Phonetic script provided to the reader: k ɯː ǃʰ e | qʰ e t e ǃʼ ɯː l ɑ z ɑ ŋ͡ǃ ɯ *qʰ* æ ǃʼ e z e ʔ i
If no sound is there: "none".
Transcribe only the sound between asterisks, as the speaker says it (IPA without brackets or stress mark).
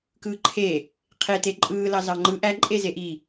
ʔ